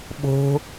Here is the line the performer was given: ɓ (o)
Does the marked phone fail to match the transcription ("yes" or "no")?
yes